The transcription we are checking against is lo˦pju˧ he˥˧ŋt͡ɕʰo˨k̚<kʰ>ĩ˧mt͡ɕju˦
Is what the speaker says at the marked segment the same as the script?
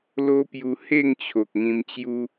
no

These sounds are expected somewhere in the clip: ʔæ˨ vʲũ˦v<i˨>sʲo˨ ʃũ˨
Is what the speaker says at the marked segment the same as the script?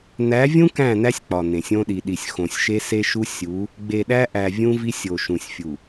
no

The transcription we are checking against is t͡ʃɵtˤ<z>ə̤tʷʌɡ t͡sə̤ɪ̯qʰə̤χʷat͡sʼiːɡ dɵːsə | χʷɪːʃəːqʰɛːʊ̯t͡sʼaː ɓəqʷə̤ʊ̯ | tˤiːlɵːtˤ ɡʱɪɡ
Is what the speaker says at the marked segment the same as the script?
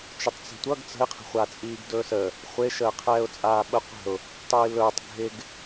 no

